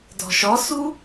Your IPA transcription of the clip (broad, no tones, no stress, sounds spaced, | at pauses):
d ɔ̤ ʃ ɔ s u